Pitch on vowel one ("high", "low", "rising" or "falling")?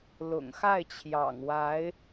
low